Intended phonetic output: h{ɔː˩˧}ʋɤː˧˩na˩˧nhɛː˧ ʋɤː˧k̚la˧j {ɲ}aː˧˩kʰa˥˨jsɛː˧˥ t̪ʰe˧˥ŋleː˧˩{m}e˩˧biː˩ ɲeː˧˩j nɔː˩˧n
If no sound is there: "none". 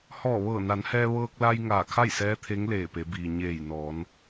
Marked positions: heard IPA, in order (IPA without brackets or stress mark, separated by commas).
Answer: ɔː˧˩, ŋ, p